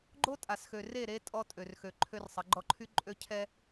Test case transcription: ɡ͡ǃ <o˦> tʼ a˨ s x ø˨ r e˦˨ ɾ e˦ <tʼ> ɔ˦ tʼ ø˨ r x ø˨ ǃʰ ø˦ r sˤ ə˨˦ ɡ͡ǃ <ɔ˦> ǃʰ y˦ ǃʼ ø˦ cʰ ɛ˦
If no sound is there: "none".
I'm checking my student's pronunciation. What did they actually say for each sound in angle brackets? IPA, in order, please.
o˦, tʼ, ɔ˦

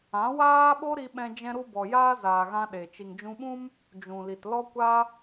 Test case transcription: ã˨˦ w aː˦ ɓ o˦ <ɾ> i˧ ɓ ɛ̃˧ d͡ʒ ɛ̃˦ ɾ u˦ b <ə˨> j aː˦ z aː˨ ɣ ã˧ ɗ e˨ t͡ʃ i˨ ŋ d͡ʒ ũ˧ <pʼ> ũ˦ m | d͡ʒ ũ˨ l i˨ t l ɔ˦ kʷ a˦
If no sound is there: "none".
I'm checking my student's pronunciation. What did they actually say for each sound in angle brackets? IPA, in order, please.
ɾ, ɔ˨, ɓ

